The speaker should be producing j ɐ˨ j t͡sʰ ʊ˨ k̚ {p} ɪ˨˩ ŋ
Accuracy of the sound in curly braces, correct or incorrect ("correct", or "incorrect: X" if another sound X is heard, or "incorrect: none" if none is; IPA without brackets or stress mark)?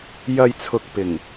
correct